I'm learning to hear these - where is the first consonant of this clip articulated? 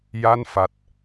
palate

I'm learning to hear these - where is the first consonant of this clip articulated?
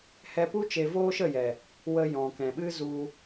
throat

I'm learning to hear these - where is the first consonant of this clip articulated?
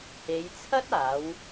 throat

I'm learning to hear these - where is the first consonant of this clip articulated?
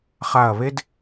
uvula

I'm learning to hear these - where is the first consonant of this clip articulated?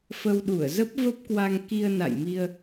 lips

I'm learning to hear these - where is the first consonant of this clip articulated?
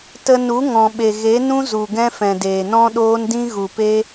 tongue tip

